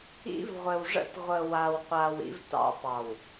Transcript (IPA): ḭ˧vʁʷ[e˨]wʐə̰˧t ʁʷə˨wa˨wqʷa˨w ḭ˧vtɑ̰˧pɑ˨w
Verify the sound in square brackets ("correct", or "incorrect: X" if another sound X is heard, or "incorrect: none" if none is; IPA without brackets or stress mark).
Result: incorrect: ɘ˨